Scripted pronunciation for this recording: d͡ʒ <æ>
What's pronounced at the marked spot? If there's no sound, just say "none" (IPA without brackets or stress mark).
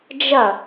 ɐ